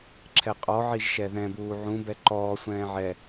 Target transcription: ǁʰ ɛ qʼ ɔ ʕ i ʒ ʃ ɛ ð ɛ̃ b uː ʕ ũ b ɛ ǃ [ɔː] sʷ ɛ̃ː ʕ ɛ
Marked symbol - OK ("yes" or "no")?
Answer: yes